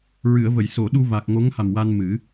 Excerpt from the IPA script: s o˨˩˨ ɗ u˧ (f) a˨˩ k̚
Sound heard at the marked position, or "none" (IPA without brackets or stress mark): v